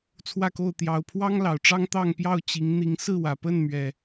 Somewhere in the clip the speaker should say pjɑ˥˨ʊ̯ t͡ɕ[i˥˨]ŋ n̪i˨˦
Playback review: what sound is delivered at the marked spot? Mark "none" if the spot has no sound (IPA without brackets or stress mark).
i˨˦